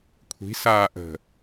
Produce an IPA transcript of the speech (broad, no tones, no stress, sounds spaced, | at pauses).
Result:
kʷʰ i̤ s aː ʔ ə̤